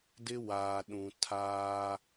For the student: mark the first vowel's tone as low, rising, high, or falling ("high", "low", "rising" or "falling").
high